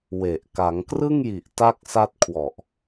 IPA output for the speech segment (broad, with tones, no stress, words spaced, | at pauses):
we˨˩ʔ ka˩˦ŋkrɯ˥˩ŋji˨˩ʔ ta˥˩k̚sa˥˩t̚ kʰwɔ˨˩ʔ